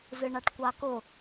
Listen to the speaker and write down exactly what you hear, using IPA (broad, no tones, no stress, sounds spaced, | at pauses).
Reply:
z ɨ ɳ a ʈ kʷ a k ʊ